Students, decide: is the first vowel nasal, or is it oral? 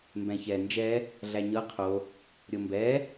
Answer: nasal